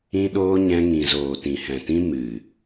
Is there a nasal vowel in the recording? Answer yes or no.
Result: yes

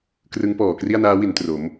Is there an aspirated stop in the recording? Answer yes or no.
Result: no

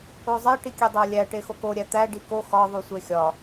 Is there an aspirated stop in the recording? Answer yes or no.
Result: no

